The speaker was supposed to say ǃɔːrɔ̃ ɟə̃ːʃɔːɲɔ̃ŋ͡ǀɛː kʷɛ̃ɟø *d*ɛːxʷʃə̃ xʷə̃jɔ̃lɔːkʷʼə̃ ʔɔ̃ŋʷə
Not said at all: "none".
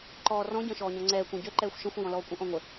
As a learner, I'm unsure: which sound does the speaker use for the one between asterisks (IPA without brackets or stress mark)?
ǃ